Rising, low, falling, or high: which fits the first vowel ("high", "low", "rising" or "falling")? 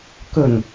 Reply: low